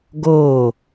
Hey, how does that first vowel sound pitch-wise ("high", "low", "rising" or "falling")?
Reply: falling